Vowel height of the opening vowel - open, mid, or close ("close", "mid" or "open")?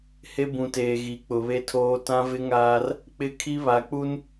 mid